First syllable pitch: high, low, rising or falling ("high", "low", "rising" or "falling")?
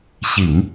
low